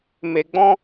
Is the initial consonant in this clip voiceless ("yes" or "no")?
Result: no